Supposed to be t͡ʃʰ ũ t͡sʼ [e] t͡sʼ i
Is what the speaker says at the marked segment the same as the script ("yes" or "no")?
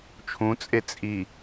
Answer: yes